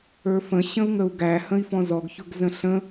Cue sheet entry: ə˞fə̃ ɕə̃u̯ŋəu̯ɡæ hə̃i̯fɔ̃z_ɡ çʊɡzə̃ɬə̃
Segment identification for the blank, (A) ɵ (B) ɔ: B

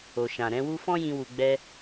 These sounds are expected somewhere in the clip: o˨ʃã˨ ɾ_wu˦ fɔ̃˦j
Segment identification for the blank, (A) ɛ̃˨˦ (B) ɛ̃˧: A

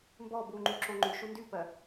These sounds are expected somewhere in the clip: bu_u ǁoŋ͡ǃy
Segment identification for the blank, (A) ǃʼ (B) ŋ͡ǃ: B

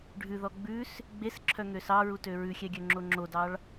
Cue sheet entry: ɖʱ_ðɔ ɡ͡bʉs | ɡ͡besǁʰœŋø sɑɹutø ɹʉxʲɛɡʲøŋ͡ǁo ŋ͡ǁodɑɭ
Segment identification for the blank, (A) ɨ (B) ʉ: B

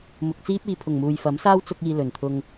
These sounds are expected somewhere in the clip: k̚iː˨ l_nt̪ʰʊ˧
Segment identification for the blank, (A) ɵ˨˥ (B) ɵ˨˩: B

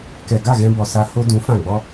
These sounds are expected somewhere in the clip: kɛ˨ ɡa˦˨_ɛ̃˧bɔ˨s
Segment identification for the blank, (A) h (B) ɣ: B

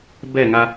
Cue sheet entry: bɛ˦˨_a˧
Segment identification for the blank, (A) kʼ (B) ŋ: B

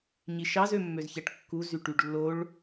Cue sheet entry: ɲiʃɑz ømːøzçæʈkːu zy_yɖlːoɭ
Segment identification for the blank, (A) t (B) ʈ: B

